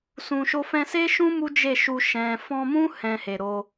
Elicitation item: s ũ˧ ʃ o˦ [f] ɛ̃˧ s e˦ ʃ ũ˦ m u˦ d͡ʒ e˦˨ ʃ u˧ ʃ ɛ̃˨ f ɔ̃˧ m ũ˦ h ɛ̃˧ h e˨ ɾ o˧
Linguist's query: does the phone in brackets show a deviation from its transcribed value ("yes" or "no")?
no